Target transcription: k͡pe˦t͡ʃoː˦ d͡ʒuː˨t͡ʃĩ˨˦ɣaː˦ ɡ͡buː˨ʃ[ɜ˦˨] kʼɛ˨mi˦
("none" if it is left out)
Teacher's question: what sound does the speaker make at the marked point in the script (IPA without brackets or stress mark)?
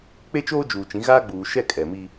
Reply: ɛ˦˨